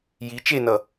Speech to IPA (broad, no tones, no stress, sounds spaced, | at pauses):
j i t͡ʃ e n ʌ